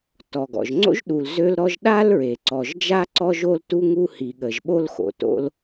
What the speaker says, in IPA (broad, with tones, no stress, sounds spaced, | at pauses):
t ɔ˩ ɡ ɔ̰˩ ʒ ŋ͡ǀ o̰˥ ʒ ɗ u˩ l z ø˥ l ɾ ɔ˥ ʒ ɗ a˥ l ɹ e˩ ǀ ɔ˩ ʒ d͡ʒ a˥ ǀ ɔ˥ ʒ o˥ l t u˥ ŋ u˥ h i˩ ɠ ə˩ ʒ ɓ o˥ l x o̰˩ t o̰˥ l